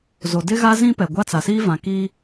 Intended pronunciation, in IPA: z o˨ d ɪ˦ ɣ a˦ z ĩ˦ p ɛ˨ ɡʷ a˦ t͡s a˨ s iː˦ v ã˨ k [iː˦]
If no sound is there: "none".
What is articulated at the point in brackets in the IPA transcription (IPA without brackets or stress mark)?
iː˦